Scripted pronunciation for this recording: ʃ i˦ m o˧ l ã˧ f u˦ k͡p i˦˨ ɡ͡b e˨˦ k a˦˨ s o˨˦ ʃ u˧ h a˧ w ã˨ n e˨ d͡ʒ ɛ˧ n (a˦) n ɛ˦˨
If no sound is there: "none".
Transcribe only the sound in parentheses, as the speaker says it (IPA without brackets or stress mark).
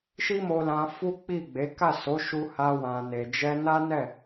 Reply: a˦